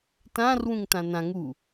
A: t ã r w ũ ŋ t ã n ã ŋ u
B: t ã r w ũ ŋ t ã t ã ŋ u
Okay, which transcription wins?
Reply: A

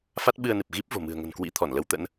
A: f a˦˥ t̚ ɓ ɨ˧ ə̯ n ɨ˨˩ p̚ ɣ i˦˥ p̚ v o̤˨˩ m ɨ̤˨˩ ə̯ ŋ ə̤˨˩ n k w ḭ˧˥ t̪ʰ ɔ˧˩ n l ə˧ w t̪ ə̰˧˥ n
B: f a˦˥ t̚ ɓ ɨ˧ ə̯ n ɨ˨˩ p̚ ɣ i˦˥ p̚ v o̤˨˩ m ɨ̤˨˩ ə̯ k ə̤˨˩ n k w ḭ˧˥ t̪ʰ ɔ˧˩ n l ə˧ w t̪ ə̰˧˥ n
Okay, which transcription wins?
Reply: A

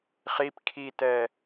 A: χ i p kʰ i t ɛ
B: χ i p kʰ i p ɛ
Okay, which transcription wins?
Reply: A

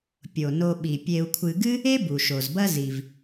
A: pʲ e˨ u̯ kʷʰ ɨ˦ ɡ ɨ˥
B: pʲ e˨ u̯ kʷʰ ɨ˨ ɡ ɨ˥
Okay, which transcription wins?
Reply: B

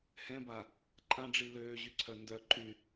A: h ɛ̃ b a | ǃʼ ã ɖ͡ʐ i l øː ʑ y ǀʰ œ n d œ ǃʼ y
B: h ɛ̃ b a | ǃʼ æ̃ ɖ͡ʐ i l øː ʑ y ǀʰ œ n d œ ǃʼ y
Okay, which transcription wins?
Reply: A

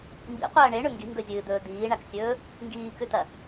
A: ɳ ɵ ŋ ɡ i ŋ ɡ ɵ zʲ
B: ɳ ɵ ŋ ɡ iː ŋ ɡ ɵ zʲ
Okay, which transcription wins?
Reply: A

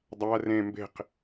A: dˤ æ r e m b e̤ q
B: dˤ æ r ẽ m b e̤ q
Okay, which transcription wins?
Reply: B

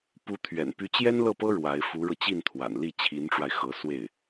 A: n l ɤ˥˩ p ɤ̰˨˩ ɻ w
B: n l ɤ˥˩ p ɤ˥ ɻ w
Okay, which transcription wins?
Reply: B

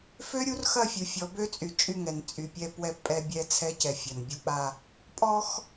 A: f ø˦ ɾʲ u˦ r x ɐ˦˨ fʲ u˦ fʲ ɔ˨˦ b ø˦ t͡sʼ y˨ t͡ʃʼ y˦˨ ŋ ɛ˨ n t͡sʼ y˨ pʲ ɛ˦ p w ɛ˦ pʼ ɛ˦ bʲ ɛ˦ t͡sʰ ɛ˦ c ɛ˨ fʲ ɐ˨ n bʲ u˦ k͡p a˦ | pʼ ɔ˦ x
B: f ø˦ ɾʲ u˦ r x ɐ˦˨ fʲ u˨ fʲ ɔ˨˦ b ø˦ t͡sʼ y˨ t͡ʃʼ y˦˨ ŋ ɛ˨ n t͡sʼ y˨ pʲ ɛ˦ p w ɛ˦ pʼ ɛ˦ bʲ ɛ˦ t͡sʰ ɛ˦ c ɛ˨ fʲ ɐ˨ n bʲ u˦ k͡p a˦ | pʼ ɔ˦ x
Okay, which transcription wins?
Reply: B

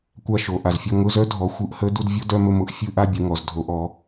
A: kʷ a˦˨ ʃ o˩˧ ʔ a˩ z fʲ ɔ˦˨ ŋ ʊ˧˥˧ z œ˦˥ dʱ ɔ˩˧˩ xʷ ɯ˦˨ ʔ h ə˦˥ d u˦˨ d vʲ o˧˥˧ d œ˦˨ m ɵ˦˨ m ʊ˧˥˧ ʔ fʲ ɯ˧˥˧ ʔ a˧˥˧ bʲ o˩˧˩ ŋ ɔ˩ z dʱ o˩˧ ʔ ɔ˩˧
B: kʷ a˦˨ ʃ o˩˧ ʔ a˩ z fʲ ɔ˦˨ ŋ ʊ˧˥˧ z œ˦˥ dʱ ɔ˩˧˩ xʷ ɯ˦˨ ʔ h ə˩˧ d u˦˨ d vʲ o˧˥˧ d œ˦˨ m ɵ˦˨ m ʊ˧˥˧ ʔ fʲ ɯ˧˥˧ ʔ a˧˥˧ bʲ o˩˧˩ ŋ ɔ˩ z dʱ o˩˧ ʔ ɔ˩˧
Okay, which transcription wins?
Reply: A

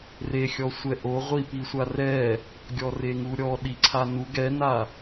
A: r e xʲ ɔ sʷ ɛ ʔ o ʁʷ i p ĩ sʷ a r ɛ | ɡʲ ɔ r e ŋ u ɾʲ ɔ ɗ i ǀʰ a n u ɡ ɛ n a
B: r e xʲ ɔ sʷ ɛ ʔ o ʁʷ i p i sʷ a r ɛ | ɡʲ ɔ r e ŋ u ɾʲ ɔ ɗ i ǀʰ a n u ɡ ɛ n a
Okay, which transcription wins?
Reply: B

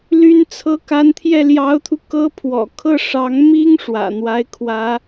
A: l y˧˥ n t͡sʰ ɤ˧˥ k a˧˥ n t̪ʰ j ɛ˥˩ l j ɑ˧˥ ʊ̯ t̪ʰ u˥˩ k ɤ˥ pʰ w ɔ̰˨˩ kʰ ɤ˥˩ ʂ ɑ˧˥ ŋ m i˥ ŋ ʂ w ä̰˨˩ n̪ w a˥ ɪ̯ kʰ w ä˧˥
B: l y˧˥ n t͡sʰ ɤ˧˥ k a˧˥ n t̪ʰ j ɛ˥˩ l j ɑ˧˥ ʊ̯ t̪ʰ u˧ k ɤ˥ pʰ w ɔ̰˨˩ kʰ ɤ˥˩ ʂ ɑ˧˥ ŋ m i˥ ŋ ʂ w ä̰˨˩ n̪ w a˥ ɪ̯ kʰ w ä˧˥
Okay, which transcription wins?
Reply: B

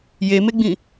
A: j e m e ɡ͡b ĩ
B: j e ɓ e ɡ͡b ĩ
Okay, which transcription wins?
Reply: A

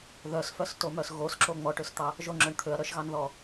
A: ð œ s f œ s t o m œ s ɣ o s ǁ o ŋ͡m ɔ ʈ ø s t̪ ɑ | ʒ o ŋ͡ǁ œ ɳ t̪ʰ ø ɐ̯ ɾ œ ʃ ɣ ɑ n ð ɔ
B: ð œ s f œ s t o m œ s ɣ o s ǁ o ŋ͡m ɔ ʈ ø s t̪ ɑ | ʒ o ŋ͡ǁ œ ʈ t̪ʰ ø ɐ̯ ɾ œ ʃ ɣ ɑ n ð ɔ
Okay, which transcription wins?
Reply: A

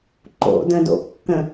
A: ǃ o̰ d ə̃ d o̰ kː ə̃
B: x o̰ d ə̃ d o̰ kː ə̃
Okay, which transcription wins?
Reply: A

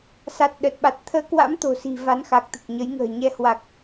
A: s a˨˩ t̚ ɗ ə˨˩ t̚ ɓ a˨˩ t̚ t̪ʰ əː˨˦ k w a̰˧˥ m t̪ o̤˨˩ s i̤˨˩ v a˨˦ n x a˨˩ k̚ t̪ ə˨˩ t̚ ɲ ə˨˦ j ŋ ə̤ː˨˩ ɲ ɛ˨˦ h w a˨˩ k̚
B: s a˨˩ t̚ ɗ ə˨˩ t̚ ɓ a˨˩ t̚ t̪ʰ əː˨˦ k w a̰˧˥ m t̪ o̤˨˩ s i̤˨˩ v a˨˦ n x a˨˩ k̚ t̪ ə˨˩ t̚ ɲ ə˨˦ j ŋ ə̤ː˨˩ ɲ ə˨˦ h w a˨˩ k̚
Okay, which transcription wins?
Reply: A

